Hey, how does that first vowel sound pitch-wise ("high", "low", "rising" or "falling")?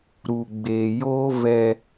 low